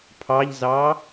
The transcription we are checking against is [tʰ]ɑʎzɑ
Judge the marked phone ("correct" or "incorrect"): incorrect